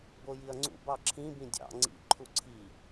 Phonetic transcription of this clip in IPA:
b o j i ɐ̯ ŋ͡ǀ ṵ b ɑ ǁʰ ĩ b ĩ dʲ ɑ̰ ŋ͡ǀ ḭ ǃʰ u ǀʰ i

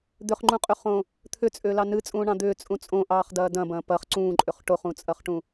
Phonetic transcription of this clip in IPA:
d̪ ʏ χ ŋ͡ǃ ũ qʼ ʏ χ õ | t̪ʰ ʏ t͡sʼ ʏː l ɑ n ɨ t͡sʼ ũː ɳ ɑ̃ d̪ ʏː t͡sʼ ũ t͡sʼ õ ʔ ɑː χ d ɐː d ɐ̃ b ɐ̃ː p ɐ χ ǀ ũː ǃʼ ʏ χ ʈ o χ ũ t͡sʼ ɐ χ ʈ ũ

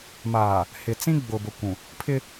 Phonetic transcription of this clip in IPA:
m aː˨ | h ɪ˨ t͡s ĩ˦ ɡ͡b ʊ˨ b ʊ˨ kʷ ũ˨ | pʰ ɪ˦

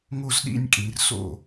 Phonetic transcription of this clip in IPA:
ŋ o˥˨ z ɗ ḭ˥˨ nʲ kʼ ĩ˩˧ r s o̰˥˨

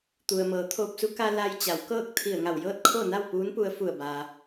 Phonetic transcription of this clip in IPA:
t̪ u˩ ə̯ m ɤː˩˧ t̪ʰ oː˧ p̚ s u˧˥ k a˧ l a˧ j t͡ɕ a˩˧ w k ɤː˥˨ k̚ t̪ʰ i˧˩ ə̯ ŋ a˧˩ w j ɤː˥˨ t̚ kʰ o˥˨ n a˥˨ w p uː˧˥ n p u˧ ə̯ f u˧˩ ə̯ b aː˩

